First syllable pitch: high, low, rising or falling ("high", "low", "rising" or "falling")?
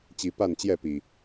rising